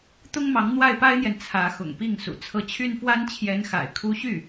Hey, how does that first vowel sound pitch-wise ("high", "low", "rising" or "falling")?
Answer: high